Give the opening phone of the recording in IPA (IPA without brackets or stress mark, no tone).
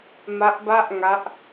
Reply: m